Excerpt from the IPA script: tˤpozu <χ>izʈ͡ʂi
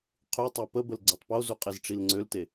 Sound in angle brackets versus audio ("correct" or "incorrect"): incorrect